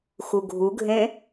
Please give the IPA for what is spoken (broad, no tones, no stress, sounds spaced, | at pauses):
x u ɡʱ u ɡʱ ẽ